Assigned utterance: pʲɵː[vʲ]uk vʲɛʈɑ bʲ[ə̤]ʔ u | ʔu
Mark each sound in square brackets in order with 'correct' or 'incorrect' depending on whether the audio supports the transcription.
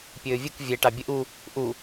correct, incorrect

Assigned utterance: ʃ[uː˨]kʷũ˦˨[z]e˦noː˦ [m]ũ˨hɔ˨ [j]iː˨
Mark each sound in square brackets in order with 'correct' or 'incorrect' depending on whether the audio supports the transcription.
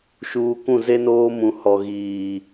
correct, correct, correct, incorrect

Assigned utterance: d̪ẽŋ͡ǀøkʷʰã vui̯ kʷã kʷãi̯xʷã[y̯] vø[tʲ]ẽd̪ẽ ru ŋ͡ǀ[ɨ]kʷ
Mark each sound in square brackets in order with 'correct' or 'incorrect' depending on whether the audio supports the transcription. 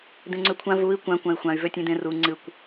correct, correct, correct

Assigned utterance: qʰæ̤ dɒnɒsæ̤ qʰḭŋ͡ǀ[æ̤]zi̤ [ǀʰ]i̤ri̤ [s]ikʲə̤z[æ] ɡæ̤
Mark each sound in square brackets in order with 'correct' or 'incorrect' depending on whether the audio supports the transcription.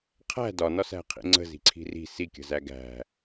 incorrect, correct, correct, correct

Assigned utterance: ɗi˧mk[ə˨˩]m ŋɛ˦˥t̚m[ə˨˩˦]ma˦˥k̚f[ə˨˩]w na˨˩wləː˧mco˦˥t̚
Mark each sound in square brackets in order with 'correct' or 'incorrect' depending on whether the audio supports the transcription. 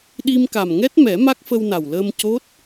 incorrect, incorrect, incorrect

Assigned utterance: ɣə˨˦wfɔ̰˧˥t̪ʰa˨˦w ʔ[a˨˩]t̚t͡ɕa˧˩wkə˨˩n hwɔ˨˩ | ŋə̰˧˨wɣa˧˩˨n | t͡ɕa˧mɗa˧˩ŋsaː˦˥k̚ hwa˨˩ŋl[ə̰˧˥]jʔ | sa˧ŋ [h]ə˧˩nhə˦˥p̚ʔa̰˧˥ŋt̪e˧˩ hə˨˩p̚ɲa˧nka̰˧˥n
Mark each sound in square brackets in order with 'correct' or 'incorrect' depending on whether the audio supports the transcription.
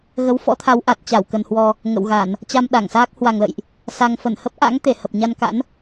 correct, incorrect, incorrect

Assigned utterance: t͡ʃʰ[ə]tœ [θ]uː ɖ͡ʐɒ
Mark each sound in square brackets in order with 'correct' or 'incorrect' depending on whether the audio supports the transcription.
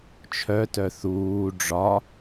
incorrect, correct

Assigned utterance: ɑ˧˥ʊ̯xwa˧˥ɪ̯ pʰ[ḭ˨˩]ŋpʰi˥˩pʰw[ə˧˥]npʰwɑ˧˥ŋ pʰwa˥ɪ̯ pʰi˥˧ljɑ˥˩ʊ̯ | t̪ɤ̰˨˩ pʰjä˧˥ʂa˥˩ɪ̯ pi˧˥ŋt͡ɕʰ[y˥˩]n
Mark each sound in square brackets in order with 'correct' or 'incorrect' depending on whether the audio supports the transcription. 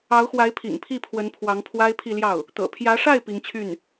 correct, correct, correct

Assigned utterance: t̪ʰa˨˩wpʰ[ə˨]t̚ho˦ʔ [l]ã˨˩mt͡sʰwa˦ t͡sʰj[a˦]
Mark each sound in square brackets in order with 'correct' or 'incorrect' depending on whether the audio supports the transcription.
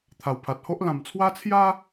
incorrect, correct, correct

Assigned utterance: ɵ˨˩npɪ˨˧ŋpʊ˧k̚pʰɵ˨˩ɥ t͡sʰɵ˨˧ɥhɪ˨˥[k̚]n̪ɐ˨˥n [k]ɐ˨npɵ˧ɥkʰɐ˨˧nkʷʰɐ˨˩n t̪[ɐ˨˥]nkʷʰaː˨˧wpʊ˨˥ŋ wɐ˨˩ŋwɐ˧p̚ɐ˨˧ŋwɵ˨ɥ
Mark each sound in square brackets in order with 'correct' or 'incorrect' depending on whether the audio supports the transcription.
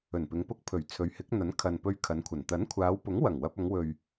correct, incorrect, correct

